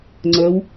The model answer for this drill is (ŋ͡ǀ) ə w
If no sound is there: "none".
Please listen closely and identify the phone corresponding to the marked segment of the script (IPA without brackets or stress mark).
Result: ŋ͡ǀ